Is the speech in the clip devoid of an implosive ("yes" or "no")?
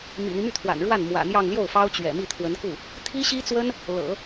yes